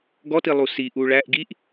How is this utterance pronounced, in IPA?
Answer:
ɡɔti lˠusi ʔuɭæʔ ɡiʔ

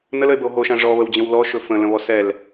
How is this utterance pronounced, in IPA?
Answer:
nələe̯bəo̯ ɦoʃã ʐɔβəwd͡ʑə̃w lɔʃɵ fə̃lə̃βɔ sɛl

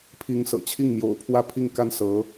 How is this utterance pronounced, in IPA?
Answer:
pʰi˧˥ŋsɤ̰˨˩t͡ɕʰi˥˩ŋ mjo̰˨˩ʊ̯pʰwä˥pʰi˥˩ŋ ka˥nsɤ˧˥

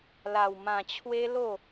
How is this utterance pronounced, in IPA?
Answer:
la˧wmã˧t͡ɕʰwe˦lo˥˧

